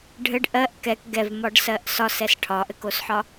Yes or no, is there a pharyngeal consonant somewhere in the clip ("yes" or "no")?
yes